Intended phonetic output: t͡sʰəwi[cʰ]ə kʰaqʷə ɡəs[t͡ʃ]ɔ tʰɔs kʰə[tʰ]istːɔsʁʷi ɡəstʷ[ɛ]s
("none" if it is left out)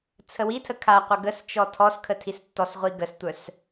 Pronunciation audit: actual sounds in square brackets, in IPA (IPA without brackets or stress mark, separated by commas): tʰ, t͡ʃ, tʰ, œ